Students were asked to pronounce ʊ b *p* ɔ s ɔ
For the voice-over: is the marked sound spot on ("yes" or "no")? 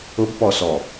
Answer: yes